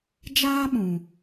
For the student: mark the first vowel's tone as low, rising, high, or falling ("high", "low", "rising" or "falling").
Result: high